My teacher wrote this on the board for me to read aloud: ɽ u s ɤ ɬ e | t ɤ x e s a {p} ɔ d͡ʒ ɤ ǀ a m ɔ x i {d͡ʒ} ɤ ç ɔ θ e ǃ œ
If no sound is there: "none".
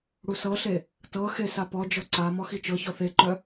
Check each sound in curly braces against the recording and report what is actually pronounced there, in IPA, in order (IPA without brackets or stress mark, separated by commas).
p, t͡ʃ